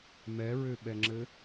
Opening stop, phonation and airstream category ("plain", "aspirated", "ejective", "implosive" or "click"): implosive